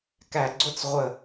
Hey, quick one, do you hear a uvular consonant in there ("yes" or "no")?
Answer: yes